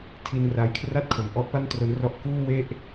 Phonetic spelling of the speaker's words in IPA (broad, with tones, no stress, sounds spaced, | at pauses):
tʰ i˧ n r a˧ j kʰ r a˥˩ t̚ kʰ o˨˩ m ʔ ɔ˥˩ ʔ p a˥˩ n t r o˦˥ n r ɔ˦˥ ʔ k uː˥˩ w e˥˩ ʔ